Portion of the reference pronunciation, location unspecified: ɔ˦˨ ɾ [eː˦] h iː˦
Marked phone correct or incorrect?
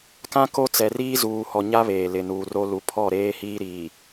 correct